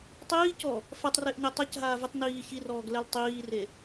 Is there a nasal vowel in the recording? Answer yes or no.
no